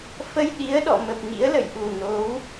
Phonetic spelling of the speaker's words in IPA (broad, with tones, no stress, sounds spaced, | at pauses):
f ə˧ j ɗ i˨˦ ə̯ ɗ ɔ̰˧˨ m ə˨˩ p̚ ŋ ḭ˧˥ ə̯ l ə̰˧˨ j ɗ u˨˩ n o˨˦ w